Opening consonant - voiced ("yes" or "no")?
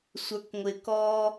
no